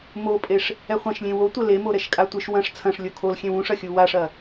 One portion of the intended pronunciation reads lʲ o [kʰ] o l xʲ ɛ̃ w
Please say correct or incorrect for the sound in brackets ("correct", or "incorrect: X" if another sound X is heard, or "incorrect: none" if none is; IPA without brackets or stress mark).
correct